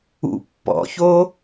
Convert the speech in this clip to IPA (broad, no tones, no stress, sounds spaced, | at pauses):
ṵ pː ɔ̰ ç o